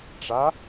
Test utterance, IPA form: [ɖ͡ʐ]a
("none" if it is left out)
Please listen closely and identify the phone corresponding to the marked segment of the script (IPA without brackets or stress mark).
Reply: ʈ͡ʂ